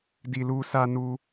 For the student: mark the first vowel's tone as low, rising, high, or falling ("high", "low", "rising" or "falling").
low